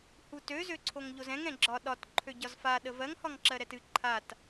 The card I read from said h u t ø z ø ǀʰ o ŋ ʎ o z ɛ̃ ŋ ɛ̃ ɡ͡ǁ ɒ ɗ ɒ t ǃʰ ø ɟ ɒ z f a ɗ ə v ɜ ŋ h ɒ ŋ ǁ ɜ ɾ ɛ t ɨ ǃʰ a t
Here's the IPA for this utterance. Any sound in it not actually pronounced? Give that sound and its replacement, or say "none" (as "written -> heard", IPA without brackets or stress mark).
none